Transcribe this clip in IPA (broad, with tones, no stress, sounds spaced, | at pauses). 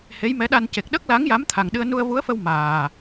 h e˧˥ j m ɛ˧˥ ɗ a˧ n c e˨˩ k̚ ɗ ə˦˥ k̚ l a˧˥ ŋ j a˧˥ m t̪ʰ a˨˩ ŋ ɗ ɨ˧ ə̯ n u˧ ə̯ v u˧˥ ə̯ f ə˧ w m aː˨˩